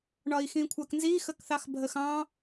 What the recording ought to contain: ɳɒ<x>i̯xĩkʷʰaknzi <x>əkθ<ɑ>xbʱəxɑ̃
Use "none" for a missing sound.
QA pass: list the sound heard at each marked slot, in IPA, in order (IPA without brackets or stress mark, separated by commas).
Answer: none, x, ɑ